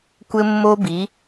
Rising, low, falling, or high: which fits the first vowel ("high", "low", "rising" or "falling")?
high